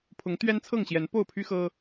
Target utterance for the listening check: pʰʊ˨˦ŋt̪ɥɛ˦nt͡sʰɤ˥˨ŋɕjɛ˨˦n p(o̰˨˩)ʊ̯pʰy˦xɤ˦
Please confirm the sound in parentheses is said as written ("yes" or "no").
no